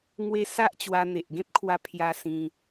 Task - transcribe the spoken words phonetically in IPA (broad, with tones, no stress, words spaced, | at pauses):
ŋwe˧ sa˦ʔ t͡ɕwa˧n̪e˨ʔ ɡẽ˦p̚kʰwa˧ pʰja˧ sĩ˧